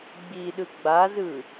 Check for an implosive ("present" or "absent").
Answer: present